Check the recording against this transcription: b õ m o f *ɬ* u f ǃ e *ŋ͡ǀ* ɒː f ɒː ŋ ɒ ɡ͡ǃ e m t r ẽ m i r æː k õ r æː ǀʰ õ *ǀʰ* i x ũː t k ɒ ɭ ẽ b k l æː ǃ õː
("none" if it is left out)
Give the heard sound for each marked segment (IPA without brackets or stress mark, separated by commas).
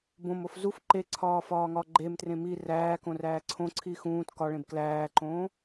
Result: z, ǀʰ, ǀʰ